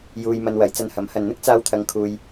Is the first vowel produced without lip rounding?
no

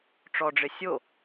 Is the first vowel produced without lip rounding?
no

